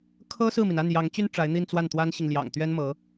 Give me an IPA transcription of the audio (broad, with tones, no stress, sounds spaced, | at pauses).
kʰ ɤ˥ s ɹ̩˥˩ m i˩ n a˥˩ n j ɑ˧˥ ŋ t͡ɕ y˥ n ʈ͡ʂ a˧˥ ɪ̯ n̪ i˥˧ n t͡s w a˥˩ n t̪ w a˥ n ɕ i˨ ŋ l j ɑ̰˨˩ ŋ t̪ ɥ ɛ˥ n m ɤ˧˥